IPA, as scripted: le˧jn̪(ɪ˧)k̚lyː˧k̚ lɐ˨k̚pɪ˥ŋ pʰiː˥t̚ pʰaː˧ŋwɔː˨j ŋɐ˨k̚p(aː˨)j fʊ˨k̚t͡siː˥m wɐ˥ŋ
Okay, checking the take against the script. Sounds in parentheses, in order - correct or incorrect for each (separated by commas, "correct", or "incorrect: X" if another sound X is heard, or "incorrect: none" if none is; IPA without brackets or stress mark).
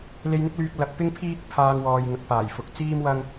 incorrect: ɪ˥, incorrect: aː˨˩